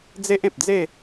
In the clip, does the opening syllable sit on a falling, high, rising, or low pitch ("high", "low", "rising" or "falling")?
high